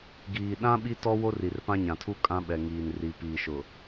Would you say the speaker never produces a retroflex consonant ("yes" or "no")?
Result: yes